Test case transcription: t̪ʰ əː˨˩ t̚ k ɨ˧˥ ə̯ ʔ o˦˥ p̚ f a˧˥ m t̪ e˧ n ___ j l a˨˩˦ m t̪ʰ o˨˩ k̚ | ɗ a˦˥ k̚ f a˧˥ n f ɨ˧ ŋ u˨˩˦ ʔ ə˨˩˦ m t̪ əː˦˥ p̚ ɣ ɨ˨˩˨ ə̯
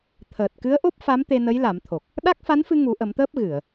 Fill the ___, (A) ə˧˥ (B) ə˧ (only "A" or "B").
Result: A